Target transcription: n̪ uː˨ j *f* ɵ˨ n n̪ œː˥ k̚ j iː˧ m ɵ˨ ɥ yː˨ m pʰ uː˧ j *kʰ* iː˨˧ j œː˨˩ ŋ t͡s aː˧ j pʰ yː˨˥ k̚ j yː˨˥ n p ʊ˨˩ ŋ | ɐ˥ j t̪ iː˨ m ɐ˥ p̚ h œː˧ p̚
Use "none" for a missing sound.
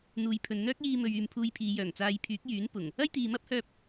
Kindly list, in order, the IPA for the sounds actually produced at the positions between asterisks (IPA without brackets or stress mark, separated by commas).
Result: pʰ, pʰ